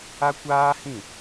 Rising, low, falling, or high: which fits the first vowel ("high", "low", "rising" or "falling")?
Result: high